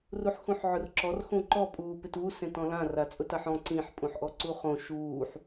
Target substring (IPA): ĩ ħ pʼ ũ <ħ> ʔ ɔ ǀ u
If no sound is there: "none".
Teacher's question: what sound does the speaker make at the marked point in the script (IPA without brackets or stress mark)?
ħ